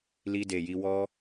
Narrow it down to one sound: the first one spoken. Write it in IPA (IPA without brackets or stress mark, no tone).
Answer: l